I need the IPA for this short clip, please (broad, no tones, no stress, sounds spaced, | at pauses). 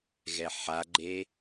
ɣ ɛ ħ a ɡ͡ǃ e